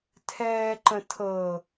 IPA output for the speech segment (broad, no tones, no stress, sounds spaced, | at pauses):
tʰ ɛː ǃ ə̃ tʰ ɤ